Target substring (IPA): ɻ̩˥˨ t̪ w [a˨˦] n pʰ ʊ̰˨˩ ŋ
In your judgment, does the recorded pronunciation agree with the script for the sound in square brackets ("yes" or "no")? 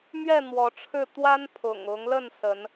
no